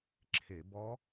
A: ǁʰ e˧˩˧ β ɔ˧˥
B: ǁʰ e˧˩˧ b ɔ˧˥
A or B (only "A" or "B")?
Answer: B